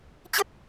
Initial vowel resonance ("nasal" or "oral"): oral